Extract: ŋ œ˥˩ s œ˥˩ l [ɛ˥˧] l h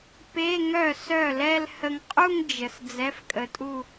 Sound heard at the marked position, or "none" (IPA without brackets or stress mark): ɛ˥˧